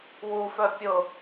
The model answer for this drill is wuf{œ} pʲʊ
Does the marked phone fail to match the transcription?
no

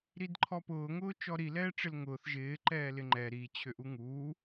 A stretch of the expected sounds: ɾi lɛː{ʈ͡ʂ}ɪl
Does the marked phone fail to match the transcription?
no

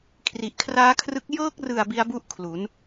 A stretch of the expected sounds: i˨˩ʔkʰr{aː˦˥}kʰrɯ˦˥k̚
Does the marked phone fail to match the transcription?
no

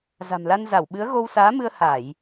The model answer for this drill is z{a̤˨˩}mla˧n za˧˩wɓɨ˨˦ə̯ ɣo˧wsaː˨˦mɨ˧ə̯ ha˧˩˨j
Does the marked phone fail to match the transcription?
no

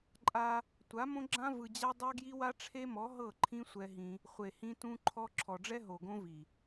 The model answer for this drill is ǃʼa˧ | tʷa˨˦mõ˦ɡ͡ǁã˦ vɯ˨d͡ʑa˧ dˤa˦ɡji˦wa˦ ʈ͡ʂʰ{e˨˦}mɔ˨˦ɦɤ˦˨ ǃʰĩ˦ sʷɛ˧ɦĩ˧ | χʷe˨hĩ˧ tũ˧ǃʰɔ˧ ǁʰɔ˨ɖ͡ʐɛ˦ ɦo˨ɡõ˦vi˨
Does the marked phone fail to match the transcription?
yes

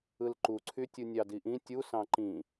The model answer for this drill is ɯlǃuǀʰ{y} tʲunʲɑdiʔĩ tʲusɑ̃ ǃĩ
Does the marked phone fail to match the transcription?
no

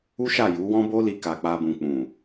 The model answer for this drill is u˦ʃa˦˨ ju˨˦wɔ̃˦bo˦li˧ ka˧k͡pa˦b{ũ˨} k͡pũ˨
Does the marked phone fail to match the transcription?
yes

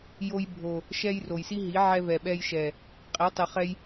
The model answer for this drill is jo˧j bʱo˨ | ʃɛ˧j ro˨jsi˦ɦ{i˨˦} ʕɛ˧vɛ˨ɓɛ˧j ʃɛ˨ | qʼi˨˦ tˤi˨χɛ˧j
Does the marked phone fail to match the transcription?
no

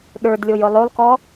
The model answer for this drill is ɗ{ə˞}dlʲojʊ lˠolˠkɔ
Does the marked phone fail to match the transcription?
no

